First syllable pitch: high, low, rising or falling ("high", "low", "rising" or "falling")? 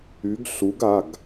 rising